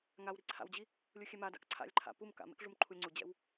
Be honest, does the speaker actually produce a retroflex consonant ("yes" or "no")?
yes